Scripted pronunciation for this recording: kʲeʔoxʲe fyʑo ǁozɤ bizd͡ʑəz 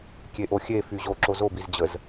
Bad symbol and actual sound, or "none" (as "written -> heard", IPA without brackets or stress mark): ɤ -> o